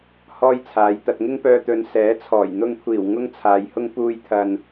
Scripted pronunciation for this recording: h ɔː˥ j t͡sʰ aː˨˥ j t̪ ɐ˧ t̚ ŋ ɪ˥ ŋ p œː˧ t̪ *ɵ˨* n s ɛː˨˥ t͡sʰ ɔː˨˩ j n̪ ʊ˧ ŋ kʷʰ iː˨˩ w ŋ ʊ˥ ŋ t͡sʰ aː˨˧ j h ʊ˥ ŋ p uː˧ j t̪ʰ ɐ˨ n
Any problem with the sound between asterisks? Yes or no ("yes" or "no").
yes